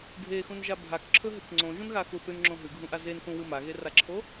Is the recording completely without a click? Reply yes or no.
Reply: no